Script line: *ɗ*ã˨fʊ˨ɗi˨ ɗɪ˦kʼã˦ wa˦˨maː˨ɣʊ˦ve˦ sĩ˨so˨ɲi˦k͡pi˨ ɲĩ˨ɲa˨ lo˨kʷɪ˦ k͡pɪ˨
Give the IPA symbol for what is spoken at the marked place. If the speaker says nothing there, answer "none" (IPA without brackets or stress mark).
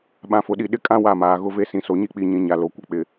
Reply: ɓ